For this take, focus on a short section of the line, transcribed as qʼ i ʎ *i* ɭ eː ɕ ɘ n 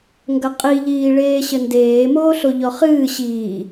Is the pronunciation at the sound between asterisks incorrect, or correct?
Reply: incorrect